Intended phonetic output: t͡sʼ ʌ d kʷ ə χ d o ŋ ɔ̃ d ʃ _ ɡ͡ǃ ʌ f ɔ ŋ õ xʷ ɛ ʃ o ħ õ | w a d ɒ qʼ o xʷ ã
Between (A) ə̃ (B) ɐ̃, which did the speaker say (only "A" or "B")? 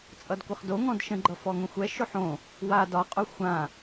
A